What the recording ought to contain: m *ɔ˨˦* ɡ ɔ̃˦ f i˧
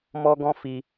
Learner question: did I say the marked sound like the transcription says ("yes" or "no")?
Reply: no